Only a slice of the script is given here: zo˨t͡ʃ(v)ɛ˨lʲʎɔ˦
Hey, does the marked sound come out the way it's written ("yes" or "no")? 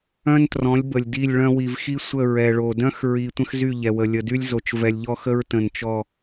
yes